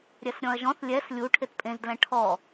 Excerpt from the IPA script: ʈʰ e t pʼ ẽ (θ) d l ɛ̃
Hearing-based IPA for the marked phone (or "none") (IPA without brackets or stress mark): z